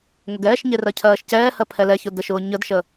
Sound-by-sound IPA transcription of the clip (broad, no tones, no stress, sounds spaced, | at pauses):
ŋ ʊ ɡ ɛː ʃ ɲ e r ɜ cʰ ɜː ʃ c ɛː h ɜ pʰ ɛ l ɛ ç ʊ d ə ʃ ʊː ɲ ə d ʃ ə